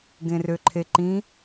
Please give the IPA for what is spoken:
ɡ ẽ r ø ǃʰ e ǃ ĩ

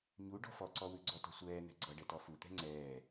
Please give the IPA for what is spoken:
ɲ u ɖ ɔ̤ f ɔ ǀ ɔ w ʉ ɡ͡ǀ ɔ t ɔ̤ sʷ ɛː n̪ ɛ̤ ɡ͡ǀ ʌ ɖ ɛ t ɔ f u t̪ ɛ̤ ŋ͡ǀ ɛː

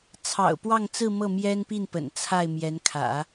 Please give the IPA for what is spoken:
t͡sʰ ɑ̰˨˩ ʊ̯ p w ɑ˥˧ ŋ t͡s ɹ̩˥˧ m ɤ˥˩ m j ɛ˥ n p i˥˩ n p ə̰˨˩ n t͡sʰ a˥˩ ɪ̯ m j ɛ˧˥ n kʰ ä̰˨˩˦

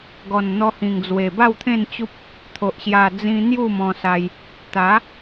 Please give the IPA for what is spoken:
ɡ ɔ˨˩ n n̪ ɔ˧ h ĩ˨˩ ŋ d͡z w e˨˩ b a˥˧ w t̪ʰ ẽ˥˧ n t͡ɕ u˦ p̚ | t̪ʰ o˨ ʔ ɕ j a˨˩ d͡z ĩ˧ n̪ j u˥˧ m ɔ̃˧ s a˧ j | t̪ a˨˦

